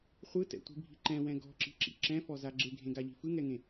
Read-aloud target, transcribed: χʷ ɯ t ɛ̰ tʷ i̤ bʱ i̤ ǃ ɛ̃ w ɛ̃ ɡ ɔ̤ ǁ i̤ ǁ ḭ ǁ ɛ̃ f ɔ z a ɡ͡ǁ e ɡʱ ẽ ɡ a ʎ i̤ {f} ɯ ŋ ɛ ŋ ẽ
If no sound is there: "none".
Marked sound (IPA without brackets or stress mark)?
f